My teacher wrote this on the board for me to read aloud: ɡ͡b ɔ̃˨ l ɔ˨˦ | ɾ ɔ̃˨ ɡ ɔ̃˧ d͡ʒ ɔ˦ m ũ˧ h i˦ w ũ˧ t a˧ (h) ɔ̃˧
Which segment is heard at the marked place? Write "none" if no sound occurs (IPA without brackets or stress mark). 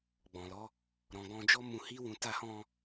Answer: h